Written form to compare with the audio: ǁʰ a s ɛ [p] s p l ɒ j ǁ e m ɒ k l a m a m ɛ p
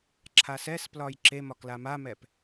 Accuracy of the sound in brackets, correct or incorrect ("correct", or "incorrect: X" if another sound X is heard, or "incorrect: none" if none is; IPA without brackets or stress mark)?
incorrect: none